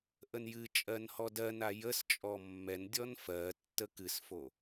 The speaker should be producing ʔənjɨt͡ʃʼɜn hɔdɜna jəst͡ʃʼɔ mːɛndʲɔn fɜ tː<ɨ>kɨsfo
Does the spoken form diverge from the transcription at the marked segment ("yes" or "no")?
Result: yes